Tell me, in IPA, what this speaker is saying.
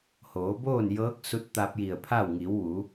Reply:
hoː˩˧boː˥˨njɤː˧˥k̚ su˧˥t̚t̪a˧p̚ji˧˩ə̯pʰa˥˨w ŋi˩˧wʋu˩˧

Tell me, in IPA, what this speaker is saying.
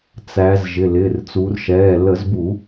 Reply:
t͡sæ˩˧z ʒɪ˩˧˩lɪː˩˧˩r t͡su˩˧rʃɛː˩˧˩ lə˧˩˧zbu˧˩˧

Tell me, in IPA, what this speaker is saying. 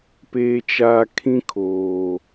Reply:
peː˨t͡ʃaː˨ kʰĩ˦kʰoː˨

